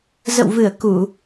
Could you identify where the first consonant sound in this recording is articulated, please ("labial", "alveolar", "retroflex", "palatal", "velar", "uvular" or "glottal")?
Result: alveolar